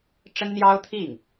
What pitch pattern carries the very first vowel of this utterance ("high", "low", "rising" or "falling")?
high